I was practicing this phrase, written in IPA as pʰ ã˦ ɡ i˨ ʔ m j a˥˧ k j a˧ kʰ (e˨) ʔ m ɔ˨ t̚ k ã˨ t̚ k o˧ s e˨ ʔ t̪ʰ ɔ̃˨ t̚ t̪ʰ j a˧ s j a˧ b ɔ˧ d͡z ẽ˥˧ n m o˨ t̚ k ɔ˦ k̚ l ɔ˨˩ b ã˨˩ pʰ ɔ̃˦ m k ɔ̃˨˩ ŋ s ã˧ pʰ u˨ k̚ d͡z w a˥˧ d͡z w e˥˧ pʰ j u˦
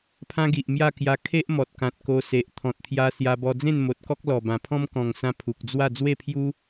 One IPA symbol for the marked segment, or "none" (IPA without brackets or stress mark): e˦